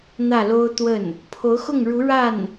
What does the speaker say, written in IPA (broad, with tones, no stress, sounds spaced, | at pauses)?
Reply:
n̪ ä˥˩ l o˥ ʊ̯ t̪ w ə˥˩ n | pʰ o˧˥ ʊ̯ x ʊ˥˩ ŋ ɻ u˧˥ ɻ a˥˩ n